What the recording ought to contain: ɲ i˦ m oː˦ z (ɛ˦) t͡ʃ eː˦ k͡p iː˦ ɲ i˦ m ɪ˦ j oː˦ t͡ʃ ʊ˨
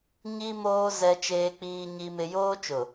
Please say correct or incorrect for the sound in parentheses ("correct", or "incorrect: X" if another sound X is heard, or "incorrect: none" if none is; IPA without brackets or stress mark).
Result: correct